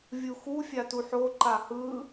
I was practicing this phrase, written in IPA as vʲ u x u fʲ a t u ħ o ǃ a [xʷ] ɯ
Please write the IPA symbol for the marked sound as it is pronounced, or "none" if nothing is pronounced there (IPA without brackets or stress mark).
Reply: h